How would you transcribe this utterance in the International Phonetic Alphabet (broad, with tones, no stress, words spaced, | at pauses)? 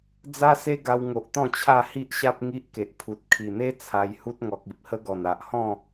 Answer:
d͡za˦se˦ɡa˧w ŋo˨ʔt̪ɔ̃˥˧ t͡ɕʰa˥˧hi˦ʔɕa˦p̚ ŋi˦ʔke˨ʔ pʰu˨t̚ kʰi˨˩n̪e˦ t͡sʰa˧jhu˦t̚ŋɔ˨k̚ i˨p̚hə˦ɡɔ˨˩n a˨ʔhɔ̃˥˧